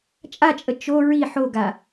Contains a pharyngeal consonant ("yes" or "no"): yes